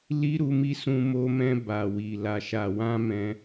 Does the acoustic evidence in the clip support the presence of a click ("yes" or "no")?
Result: no